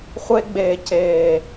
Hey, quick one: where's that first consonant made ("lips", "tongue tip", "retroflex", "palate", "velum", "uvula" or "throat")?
uvula